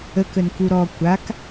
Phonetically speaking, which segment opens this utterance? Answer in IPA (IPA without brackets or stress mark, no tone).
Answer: ə